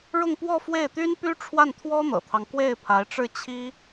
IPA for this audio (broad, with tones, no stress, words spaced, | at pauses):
ɻʊ˥˧ŋpwɔ˥˧fwe˥˩ɪ̯t̪y˥n py˥ ʈ͡ʂʰwa˥˩nt̪ʰwɔ˥n̪ɤ̰˨˩t̪ʰɑ˦ŋ kwe˥˩ɪ̯pʰa˧˥ɪ̯ʈ͡ʂɻ̩˥˩ t͡ɕʰi˥